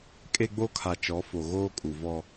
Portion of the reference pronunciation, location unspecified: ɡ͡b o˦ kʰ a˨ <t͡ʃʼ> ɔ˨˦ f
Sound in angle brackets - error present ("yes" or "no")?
yes